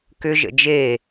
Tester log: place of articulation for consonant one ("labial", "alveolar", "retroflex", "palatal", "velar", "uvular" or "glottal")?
velar